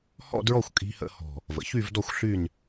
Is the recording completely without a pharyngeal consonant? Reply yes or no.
yes